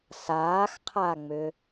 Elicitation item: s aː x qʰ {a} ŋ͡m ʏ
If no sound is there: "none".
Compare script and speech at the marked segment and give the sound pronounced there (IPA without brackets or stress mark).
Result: a